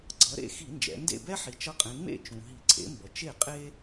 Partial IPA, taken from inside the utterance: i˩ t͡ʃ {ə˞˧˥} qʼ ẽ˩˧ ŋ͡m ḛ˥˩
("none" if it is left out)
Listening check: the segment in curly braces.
ʌ˧˥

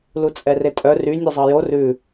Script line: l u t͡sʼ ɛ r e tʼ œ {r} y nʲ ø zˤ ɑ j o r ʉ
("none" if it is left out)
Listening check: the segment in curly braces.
r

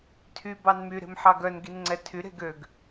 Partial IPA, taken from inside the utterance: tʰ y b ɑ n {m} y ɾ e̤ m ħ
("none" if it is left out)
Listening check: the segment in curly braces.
m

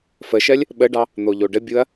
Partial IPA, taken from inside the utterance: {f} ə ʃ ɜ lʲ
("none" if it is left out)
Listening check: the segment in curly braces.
f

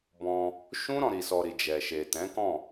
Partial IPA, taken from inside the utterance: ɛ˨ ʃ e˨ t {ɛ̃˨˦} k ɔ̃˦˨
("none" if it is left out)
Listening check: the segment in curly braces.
ɛ̃˨˦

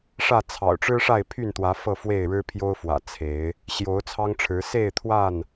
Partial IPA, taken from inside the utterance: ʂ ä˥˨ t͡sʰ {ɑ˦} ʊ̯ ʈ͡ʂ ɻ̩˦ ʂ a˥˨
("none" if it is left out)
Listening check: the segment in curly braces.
ɑ̰˨˩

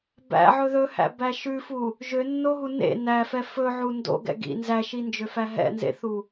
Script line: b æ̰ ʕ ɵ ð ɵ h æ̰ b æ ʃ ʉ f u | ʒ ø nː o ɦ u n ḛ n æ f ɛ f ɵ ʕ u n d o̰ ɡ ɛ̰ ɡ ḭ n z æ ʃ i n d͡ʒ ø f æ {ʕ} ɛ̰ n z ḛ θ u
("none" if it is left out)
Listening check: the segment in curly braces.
ɦ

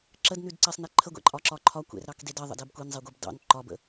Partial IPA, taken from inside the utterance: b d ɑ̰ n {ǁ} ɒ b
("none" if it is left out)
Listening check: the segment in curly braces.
ǃ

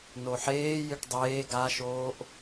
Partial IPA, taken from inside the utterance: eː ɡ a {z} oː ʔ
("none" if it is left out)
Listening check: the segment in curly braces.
ʃ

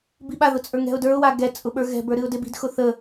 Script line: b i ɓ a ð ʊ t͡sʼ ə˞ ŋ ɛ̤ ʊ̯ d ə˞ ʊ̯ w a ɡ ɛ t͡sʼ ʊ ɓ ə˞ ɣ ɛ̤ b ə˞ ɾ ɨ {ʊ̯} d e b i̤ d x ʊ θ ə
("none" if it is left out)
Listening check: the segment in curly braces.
ʊ̯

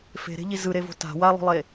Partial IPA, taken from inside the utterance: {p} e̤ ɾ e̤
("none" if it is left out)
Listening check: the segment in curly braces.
f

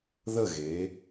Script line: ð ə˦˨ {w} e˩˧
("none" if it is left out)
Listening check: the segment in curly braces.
ɣ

